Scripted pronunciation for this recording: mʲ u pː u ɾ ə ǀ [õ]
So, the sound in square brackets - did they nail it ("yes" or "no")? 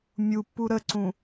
no